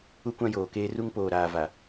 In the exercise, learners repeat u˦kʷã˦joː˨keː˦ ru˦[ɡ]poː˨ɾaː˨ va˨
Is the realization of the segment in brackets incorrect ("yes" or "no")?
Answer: yes